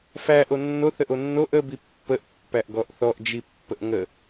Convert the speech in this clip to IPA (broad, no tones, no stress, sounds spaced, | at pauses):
f æ ʔ o nː o θ ə ʔ o nː o ʔ ə b i pː ə ʔ pː æ ʔ ɡ ɔ ʔ θ ɔ ʔ d͡ʒ i pː ə ʔ ŋ ə